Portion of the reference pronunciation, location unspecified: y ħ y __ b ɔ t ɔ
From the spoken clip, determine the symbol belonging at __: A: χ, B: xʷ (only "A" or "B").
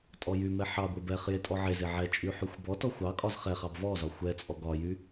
B